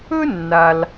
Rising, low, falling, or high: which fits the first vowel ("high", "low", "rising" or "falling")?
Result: high